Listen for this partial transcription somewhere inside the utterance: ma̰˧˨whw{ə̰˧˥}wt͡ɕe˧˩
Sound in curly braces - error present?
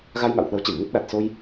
yes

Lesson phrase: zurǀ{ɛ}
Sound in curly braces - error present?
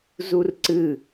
yes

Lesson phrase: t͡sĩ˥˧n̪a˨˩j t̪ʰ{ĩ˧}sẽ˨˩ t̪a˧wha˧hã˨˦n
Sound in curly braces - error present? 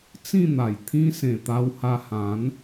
yes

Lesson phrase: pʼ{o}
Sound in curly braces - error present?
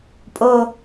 no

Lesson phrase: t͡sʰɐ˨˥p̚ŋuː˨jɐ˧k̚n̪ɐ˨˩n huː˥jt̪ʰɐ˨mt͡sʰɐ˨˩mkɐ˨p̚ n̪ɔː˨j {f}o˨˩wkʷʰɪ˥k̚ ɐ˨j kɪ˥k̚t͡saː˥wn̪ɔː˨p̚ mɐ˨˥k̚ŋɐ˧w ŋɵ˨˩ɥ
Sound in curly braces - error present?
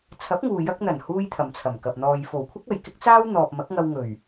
no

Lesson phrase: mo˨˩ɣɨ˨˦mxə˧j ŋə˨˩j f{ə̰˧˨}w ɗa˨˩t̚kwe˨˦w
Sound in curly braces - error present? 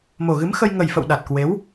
no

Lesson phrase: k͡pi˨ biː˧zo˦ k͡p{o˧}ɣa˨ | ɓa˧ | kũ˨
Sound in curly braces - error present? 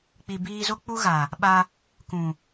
yes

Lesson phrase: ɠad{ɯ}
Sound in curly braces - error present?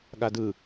no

